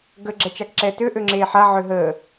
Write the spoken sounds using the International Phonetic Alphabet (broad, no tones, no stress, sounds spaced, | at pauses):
ɡ ə ɡ͡ǁ ɛ t͡ʃ a k ǁ ɛ t ø ʔ ø ŋ͡ǁ eː ħ a ʕ ø ɦ əː